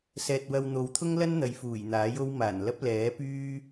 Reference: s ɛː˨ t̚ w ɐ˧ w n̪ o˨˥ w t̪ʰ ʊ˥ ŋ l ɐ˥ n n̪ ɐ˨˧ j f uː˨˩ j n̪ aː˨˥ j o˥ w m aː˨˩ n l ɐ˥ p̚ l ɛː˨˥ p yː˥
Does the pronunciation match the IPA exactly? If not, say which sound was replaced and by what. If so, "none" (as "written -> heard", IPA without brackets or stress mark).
none